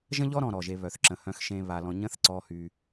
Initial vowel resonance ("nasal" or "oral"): nasal